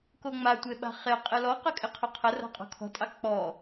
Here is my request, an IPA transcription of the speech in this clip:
k o ŋ͡m a tʷ e ɓ a̤ χ e qʼ ɪ l ɔ q ə kʼ ɪ qʰ ɔ qʰ ə r a̤ qʼ ɔ̤ kʰ ɔ̤ tʼ ɑ k͡p ɔ

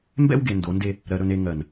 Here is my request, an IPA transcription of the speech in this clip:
m b ɛ̰˦ w ɡ e˨ n d o˨˦ n d e˦ | ɾ ɜ˨ ɾ ɵ˨ n e˨ ŋ ɜ˨ n

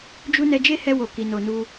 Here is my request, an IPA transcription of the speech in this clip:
d͡ʒ u˦ n ɛ˧ d͡ʒ e˦ h ɛ˧ w o˨ k i˨ n o˨ n u˧

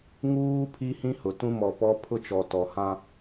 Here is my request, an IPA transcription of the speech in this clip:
ŋ uː˦ pʰ i˦ h ĩ˦ h ʊ˨ t ũ˦ m ɔ˨ p ɔ˦ pʰ ʊ˦ t͡ʃ ɔ˨ t ɔ˨ h ã˦

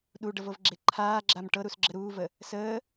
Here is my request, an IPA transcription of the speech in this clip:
ɗ u ɖ ɤ v ɤ v ɡ͡ǁ e ǃʰ aː ɡ͡ǁ a m ʈ ɤ ɾ u s ɡ͡ǁ ə ɾ uː v ə | s əː

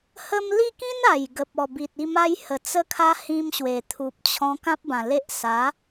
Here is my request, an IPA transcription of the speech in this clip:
h ə˧ m l i˥˧ k ĩ˦ n a˨˩ j ɡ ə˨ p̚ ɔ˨˩ b i˨ t̚ i˥˧ m a˦ j h ə˨˩ t͡s ə˧ kʰ a˧ h ĩ˧ m ɕ w e˨˩ t̪ʰ u˨ p̚ t͡ɕʰ ɔ̃˧ k ã˦ p̚ b ã˨˩ l e˦ ʔ s a˨˦

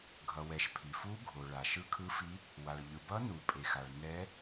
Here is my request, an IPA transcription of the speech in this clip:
ɡʱ ʌ˩ w ɛ˩ ʃ pʰ i˩ f u˧˥ ɡʱ o˩ ɭ a˩ ʃ ɯ˧˥ kʰ ɯ˧˥ f i˧˥ | w a˩ ɭ ʎ ɯ˩ b ʌ˧˥ n u˩ pʼ e˩ x a˩ ɭ n ɛ˧˥

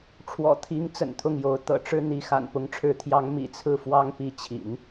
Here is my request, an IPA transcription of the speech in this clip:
ʈ͡ʂʰ w ɔ̰˨˩ t̪ʰ i˧˥ ŋ t͡s ə̰˨˩ n t̪ʰ ʊ˥˩ ŋ j o˧˥ ʊ̯ t̪ ɤ̰˨˩ ʈ͡ʂ ɻ̩˥ n̪ i˧˥ x a̰˨˩ n p ʊ˧˥ ŋ ʈ͡ʂʰ ɻ̩˧˥ t̪ʰ j ɑ˧˥ ŋ m ḭ˨˩ t͡sʰ ɹ̩˥˩ f w ɑ˥ ŋ p i˧˥ t͡ɕʰ ḭ˨˩˦ n

